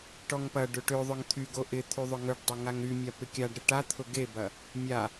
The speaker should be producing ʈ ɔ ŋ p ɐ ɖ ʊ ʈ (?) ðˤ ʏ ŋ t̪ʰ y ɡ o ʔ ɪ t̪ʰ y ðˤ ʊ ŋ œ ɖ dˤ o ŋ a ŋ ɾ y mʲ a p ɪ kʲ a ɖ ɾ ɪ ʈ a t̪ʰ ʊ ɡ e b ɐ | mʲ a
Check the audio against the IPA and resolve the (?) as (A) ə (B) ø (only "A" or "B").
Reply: B